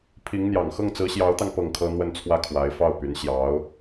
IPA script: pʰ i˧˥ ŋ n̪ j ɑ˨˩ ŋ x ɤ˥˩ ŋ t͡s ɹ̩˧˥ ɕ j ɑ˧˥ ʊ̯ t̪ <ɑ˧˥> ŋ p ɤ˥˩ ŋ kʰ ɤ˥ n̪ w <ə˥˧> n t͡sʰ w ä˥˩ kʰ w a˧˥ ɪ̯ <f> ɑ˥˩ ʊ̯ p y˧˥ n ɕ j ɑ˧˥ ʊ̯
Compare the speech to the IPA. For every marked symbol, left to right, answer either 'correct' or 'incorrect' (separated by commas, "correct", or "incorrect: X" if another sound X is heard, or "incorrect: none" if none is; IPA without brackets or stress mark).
incorrect: ɑ˧, correct, correct